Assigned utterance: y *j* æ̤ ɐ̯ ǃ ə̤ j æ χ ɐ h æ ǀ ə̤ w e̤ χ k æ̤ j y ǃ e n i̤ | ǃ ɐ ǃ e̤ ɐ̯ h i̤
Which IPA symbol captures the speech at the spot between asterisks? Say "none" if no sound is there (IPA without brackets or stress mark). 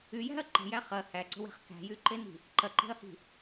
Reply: j